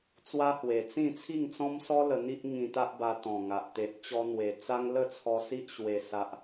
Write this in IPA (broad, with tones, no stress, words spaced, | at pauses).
t͡swa˦hwe˨˩t͡sĩ˥˧ t͡sʰi˥˧ŋt͡sɔ̃˦msɔ˦ lə˧n̪i˦ʔ ŋĩ˧t̪a˦ʔba˧ t̪ɔ̃˨˩ŋa˨ʔ t̪e˨ʔt͡ɕɔ˧n̪we˨˩t͡sa˦ŋ lə˥˧t͡sʰɔ˧ si˦ʔɕwe˨˩ sa˨ʔ